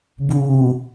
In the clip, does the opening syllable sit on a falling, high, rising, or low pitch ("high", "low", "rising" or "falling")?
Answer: low